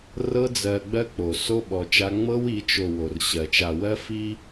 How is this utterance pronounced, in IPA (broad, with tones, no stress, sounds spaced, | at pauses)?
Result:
r ɤ˦ d͡z ɜ˨ ɡ͡b ɜ˦ k͡p o˨ s o˦ ɓ ɔ˨ t͡ʃ a˦ ŋ͡m ɤ˦ w i˨˦ t͡ʃ o˨ w o˨ r ɕ ɜ˨ t͡ʃ a˨ w ɜ˦ f i˦